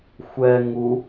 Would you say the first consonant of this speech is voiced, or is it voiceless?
voiceless